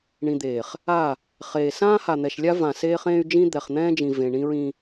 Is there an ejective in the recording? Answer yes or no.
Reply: no